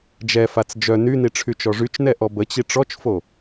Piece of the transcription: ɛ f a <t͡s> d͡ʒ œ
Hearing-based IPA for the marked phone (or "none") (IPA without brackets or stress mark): t͡s